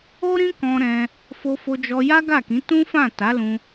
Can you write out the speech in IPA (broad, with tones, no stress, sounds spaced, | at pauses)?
o˦ ɾ ĩ˦ k ɔ̃˧ ɾ ɛ̃˧ | f o˧ f o˧ d͡ʒ ɔ˧ j a˦ ɡ a˦˨ k ĩ˨˦ t ũ˦ f ã˦˨ t a˨˦ l ũ˧